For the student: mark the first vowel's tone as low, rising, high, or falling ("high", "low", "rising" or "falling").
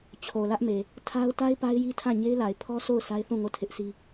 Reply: low